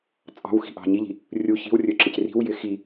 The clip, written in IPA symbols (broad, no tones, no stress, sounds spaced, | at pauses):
t͡sʼ ɑ̤ w x i̤ ʔ ɑ̤ ɲ i ʎ i̤ | rʲ u ç i̤ w rʲ ɵ ǁ ɪ c r i̤ w j ɪ x i